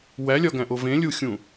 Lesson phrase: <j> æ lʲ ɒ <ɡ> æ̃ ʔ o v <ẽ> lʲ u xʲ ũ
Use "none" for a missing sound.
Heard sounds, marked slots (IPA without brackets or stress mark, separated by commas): w, ɡ, ẽ